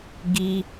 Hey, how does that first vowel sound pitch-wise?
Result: high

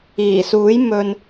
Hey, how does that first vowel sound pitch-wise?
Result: low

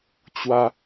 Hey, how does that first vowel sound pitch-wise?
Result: high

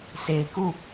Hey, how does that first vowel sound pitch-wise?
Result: low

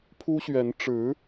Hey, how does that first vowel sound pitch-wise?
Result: high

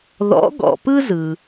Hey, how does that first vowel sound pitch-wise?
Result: rising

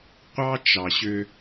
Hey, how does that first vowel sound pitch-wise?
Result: high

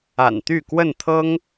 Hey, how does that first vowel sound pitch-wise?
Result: low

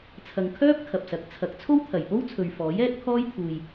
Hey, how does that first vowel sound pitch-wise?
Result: low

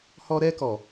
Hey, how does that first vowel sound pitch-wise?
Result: high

